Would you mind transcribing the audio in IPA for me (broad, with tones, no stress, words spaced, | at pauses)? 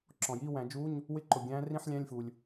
ǁɔ̃˩jiː˧˥˧wæ̃˨˩˦ d͡ʒu˧˥˧ɲ | wɪ˦˨ǃʊ˩ɡʲæ̃ː˨˦rĩ˧˥˧ħ lʲæ̃˧˥˧lʲfu˩lʲ